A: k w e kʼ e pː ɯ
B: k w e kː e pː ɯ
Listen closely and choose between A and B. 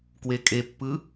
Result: A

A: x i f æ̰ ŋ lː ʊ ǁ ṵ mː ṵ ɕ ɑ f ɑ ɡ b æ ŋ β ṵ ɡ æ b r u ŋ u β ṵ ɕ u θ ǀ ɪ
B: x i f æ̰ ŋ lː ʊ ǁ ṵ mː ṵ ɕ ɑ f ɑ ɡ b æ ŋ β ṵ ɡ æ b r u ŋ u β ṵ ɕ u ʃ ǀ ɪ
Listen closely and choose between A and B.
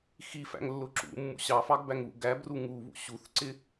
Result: A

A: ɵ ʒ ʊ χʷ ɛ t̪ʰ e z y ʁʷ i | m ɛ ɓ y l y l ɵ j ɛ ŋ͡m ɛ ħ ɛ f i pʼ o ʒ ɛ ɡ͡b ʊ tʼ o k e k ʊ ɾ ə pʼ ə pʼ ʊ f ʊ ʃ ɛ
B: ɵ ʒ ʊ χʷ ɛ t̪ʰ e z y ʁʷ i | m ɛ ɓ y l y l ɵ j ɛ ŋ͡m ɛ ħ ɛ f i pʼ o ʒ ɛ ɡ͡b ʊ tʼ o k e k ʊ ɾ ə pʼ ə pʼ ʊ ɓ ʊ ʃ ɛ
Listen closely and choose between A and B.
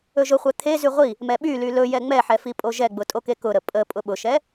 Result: B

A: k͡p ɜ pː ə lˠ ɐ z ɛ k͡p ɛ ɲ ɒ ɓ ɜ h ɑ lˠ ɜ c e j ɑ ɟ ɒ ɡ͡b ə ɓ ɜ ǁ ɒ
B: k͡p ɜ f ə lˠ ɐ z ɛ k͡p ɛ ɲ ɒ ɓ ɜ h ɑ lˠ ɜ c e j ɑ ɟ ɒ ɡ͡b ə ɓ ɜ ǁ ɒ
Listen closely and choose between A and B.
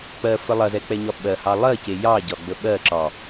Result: B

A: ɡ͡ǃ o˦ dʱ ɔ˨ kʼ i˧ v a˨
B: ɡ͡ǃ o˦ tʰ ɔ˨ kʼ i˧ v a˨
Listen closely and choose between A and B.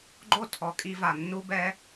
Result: B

